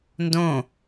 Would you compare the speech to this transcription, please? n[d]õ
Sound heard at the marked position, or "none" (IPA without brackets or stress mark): d